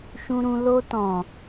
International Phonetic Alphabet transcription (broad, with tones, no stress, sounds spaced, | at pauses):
ʃ ũ˧ ɾ ũ˧ l o˧ t ɔ̃˨